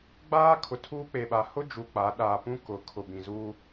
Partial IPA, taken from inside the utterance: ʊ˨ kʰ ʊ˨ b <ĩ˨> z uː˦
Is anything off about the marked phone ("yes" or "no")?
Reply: no